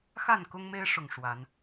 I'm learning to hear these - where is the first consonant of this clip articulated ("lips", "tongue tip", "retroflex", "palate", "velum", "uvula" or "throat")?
velum